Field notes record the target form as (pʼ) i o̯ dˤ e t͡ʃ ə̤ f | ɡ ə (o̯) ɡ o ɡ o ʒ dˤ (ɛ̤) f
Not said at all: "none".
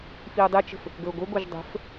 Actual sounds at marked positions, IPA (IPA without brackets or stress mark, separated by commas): f, o̯, ə̤